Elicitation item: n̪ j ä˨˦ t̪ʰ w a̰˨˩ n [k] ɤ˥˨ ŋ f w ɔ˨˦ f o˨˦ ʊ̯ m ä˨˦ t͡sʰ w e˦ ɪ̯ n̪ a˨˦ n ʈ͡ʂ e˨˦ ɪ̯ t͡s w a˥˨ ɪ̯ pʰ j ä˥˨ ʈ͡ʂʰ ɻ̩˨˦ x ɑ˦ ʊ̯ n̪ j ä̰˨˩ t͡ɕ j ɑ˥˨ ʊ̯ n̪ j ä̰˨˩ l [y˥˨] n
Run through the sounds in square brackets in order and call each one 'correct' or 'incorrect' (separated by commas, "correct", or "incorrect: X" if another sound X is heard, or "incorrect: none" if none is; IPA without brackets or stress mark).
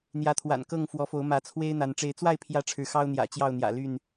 correct, correct